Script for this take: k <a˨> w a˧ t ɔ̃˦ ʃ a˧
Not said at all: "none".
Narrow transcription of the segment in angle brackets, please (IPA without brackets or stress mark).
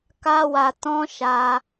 a˦